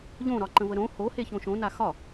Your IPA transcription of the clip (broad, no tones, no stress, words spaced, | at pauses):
ʎõɾɒǃə̃və ɾõ hoheçõ ʃõna xɒ